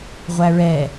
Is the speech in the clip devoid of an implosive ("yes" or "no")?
yes